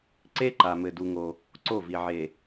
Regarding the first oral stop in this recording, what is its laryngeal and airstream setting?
click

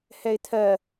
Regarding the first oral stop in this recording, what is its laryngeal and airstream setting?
aspirated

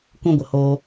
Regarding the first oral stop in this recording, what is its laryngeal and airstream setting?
plain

